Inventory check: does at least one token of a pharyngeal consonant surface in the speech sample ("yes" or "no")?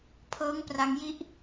no